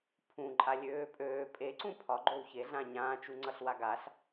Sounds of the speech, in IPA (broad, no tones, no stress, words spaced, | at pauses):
pʰũ ǃʼalʲøːpʼøː pʼe ǀũpʰɒ ɡ͡ǃowçe ɮãɲãː t͡ʃuŋ͡ǀʌɬwaɡaɬ